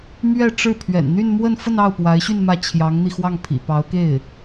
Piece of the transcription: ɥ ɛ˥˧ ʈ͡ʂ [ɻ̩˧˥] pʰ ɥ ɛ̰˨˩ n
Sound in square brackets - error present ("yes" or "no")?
yes